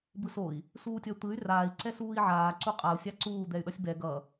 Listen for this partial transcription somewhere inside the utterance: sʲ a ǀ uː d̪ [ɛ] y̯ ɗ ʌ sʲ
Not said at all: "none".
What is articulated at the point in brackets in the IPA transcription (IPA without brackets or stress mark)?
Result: ɛ